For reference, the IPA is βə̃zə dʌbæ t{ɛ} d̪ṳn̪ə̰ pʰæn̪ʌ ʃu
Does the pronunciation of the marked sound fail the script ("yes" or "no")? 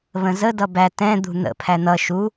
yes